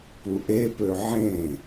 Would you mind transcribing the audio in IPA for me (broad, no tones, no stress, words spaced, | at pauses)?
puʔe pøʕẽ